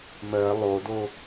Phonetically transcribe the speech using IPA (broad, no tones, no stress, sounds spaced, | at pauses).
m ɜ lˠ o d o